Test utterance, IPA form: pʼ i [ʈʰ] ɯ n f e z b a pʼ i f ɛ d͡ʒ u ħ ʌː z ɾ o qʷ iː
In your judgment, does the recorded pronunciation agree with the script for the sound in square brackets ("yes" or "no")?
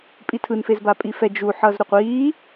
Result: no